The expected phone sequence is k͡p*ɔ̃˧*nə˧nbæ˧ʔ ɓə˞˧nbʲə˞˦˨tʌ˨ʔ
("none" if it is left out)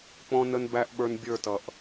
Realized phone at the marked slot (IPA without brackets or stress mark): ɔ̃˧